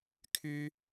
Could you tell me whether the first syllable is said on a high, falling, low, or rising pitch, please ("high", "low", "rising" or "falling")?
high